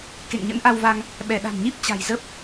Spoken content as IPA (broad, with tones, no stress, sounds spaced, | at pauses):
k ḛ˧˨ ŋ ɲ ə̰˧˥ n ʔ a˧ w v a˧ ŋ | ɓ ɛ˧˩ ɗ a̤˨˩ n ɲ i˦˥ p̚ t͡ɕ a̤˨˩ j z ə˦˥ p̚